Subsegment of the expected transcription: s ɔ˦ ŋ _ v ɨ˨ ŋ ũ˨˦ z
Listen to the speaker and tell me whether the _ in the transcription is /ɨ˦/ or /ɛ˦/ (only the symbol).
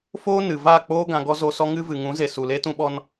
ɨ˦